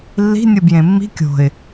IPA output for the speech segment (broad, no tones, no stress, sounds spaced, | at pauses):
lː i̤ nʲ ɯ b j ẽ mː i̤ kʲ o̤ ɪ̯